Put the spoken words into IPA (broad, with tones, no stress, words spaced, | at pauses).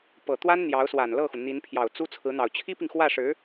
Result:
pɤ˨˩t̪wa˥n n̪jɑ˧˥ʊ̯swa˨˩nlɤ˥˩xu˩ n̪i˧˥npʰjɑ˨˩ʊ̯t͡su˥ t͡sʰɹ̩˧˥n̪ɑ˨˩ʊ̯ t͡ɕʰi˥pi˨ŋxwä˥˩ʂɻ̩˧˥